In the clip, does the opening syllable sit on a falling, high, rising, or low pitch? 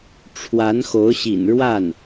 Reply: rising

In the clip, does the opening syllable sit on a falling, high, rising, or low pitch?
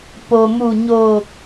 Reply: low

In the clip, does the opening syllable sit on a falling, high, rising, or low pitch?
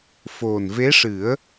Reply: low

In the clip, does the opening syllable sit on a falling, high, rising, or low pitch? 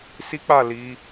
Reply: high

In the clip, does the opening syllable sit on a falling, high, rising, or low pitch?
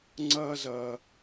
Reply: high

